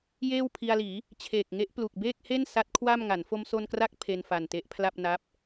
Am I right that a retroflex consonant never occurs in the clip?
yes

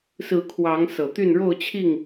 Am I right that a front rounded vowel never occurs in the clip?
no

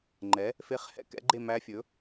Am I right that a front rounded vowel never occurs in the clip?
yes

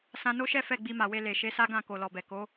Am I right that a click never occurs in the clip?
yes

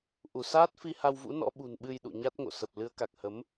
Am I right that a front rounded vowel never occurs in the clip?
yes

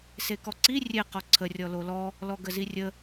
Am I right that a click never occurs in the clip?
no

